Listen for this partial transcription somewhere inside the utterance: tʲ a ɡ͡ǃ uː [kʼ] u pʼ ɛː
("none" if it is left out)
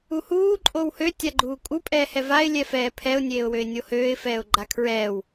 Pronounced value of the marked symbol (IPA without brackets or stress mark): kʼ